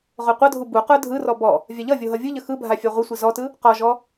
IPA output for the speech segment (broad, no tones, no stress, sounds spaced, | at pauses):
ʁ o qʷ ʌ dʱ u b u q ə˞ dʱ ɯ r ɔ b ɔ | vʲ a ʎ ʌ vʲ o ɦ ʌ vʲ ɯ ʎ ə x ɯ bʱ a fʲ a ʁʷ ə sʷ i z ɔ t ɯ | q ɔ ʒ ɔ